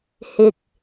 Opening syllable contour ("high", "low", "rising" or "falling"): low